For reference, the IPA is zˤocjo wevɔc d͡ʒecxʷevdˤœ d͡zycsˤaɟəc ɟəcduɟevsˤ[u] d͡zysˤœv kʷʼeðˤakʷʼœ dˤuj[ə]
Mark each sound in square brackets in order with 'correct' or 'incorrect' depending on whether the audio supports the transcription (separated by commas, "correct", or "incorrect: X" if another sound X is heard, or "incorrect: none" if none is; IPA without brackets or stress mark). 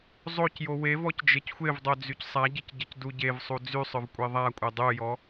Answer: correct, incorrect: ɔ